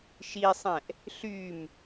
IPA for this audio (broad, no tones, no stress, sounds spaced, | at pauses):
ʃ i sˤ ɛ̃ ʔ | ɬ y m